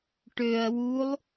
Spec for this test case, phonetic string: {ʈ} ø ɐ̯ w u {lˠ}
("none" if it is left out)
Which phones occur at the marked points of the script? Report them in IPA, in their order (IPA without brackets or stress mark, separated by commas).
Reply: ʈ, lˠ